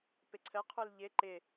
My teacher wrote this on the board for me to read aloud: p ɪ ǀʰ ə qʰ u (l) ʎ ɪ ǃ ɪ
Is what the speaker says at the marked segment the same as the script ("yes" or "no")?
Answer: yes